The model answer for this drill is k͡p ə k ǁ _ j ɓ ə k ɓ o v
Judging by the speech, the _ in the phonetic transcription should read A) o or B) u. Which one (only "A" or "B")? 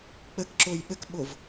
A